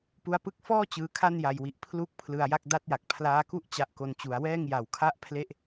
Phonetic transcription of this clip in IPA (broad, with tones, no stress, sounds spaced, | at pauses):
p u˦˥ a̯ p ɯ˥˩ k̚ f ɔː˥˩ t͡ɕ ɯː˧ kʰ a˥˩ n j a˨˩ j w i˨˩ ʔ pʰ l u˦˥ k̚ pʰ l ɯ˧ a̯ j a˥˩ k̚ d a˦˥ t̚ j a˨˩ k̚ pʰ l aː˦˥ k u˥˩ ʔ t͡ɕ a˦˥ ʔ k o˧ n t͡ɕ u˩˦ a̯ w ɛː˥˩ ŋ j a˨˩ w kʰ a˥˩ ʔ pʰ l e˥˩ ʔ